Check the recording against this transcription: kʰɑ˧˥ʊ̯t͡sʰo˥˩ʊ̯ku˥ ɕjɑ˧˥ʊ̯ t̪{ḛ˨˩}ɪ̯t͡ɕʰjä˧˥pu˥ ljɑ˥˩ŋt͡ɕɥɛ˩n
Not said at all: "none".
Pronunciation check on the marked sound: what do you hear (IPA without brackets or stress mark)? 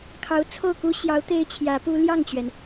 e˥